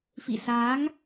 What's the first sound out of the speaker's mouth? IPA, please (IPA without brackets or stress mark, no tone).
f